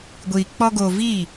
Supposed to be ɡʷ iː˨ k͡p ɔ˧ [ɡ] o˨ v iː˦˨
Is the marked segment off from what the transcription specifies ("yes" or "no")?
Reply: no